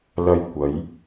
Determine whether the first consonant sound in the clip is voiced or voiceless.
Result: voiced